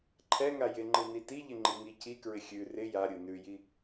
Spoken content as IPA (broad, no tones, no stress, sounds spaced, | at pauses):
ǃʰ ɛ ŋ a j ɪ ŋ͡ǃ ɯ n i t i ʎ ɪ ŋ͡ǃ i ŋ i c i k ɹ ɪ xʲ ʉ r ɪ j a ɾʲ ɯ n ʉ j i